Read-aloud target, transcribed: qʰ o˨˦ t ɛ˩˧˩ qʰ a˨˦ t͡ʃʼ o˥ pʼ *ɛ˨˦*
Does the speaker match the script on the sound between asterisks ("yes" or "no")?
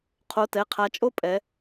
yes